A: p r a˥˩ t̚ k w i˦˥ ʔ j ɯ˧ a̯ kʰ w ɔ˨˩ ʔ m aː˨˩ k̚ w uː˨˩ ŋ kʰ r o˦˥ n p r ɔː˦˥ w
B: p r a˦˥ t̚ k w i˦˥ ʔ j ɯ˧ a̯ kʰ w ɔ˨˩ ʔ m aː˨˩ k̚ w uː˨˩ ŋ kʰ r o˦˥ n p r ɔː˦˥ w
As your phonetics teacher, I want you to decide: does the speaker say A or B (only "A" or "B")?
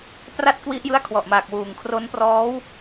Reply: A